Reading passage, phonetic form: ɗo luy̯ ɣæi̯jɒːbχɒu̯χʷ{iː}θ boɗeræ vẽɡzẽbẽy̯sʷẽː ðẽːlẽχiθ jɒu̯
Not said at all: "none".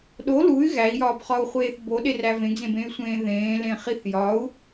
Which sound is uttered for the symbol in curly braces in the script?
eː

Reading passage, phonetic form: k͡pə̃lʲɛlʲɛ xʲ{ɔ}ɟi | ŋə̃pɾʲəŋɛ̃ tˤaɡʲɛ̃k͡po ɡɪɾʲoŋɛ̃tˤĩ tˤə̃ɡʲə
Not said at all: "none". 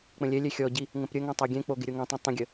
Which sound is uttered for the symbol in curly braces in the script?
ɔ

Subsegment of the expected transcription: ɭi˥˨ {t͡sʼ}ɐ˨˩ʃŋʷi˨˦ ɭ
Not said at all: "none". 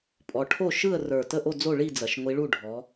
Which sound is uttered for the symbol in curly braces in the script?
d͡z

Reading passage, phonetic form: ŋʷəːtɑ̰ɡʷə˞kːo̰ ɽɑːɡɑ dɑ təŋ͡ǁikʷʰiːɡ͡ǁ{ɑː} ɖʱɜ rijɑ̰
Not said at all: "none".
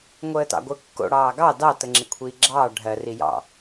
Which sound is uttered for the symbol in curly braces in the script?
ɑː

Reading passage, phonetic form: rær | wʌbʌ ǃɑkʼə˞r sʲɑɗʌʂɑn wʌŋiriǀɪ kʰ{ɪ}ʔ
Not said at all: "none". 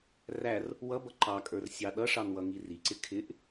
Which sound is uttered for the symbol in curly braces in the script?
ɪ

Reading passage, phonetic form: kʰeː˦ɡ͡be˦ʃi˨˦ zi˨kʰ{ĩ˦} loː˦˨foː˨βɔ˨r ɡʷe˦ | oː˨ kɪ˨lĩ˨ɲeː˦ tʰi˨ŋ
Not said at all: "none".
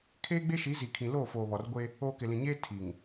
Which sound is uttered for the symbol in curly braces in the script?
ĩ˨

